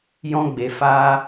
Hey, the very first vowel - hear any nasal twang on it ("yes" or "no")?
yes